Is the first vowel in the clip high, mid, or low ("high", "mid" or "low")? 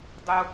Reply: high